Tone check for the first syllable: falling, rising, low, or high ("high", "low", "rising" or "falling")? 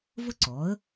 high